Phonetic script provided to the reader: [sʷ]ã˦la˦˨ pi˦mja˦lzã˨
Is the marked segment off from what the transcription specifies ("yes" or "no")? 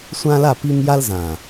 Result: no